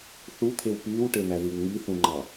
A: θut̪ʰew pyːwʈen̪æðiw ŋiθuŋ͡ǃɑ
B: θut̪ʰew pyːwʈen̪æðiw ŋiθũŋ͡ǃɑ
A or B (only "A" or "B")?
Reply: B